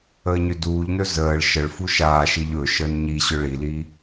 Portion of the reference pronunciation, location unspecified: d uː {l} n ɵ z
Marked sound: incorrect: ʎ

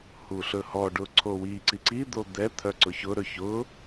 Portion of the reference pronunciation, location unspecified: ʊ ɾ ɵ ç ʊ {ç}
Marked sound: incorrect: none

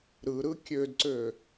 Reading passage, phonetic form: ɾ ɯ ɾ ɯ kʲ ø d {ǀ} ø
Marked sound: correct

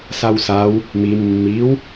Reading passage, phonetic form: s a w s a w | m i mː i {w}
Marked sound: correct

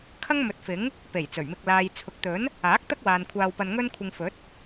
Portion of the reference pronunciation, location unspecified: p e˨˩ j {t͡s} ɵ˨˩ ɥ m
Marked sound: correct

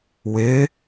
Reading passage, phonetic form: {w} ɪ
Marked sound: correct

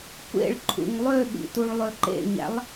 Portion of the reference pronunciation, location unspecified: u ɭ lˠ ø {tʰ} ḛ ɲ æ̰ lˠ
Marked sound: incorrect: ǃ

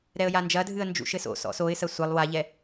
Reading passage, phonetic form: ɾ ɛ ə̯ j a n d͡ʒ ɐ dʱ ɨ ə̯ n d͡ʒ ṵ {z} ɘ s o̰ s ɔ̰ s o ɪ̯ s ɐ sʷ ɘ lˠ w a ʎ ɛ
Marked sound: incorrect: ʃ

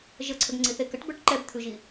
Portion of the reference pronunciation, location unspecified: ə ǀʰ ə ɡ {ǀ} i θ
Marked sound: incorrect: ŋ͡ǀ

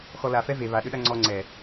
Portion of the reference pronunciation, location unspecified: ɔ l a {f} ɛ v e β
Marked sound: correct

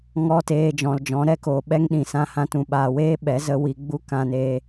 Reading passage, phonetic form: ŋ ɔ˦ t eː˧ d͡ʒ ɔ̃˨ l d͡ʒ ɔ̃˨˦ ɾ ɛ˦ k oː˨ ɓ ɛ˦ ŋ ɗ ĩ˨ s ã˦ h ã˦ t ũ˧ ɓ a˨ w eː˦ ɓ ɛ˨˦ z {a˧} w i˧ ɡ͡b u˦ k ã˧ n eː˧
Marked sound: incorrect: ə˧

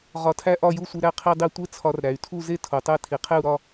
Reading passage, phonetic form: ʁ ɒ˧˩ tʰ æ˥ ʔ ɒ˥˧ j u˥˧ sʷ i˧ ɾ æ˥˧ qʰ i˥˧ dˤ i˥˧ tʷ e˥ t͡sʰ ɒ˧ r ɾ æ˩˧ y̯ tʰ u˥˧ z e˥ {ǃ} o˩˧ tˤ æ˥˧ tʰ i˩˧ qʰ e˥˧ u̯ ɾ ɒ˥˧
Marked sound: incorrect: tʰ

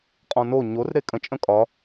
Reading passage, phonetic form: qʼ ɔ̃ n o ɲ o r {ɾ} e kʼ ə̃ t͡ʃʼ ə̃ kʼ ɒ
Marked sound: correct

